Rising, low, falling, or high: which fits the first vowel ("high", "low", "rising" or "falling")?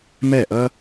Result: falling